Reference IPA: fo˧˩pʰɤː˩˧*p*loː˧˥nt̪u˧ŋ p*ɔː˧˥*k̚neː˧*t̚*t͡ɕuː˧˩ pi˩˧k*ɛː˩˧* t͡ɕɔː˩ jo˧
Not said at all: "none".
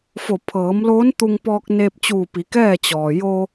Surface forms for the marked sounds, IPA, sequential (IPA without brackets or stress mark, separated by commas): m, ɔː˧, p̚, ɛː˥˨